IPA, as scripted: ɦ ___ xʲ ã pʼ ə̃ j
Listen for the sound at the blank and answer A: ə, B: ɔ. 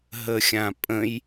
A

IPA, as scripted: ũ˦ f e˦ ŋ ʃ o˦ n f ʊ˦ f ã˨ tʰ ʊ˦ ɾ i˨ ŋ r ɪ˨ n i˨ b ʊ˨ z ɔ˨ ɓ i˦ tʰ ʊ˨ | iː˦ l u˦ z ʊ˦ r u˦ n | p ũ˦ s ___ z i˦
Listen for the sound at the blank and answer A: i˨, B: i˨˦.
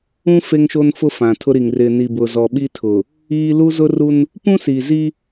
A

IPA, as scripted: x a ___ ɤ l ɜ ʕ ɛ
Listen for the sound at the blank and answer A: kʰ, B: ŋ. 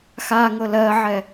B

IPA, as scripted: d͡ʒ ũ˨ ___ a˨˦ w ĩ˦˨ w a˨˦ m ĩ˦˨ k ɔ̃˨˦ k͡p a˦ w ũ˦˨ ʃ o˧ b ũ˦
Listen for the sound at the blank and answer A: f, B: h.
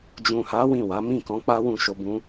B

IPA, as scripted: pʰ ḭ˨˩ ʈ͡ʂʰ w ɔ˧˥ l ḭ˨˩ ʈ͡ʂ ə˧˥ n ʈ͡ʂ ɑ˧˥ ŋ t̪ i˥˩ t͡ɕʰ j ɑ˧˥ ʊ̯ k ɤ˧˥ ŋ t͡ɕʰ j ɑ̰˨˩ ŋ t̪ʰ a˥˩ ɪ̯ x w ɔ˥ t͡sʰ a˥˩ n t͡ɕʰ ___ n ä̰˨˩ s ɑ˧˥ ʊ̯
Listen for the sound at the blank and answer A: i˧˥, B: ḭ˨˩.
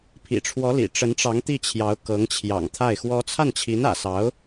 A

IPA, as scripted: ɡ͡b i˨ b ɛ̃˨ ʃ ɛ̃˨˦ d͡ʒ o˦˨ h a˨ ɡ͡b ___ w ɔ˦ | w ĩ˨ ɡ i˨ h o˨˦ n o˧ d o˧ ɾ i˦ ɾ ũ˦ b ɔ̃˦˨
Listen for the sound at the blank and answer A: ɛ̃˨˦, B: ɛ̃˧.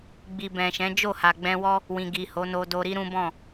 B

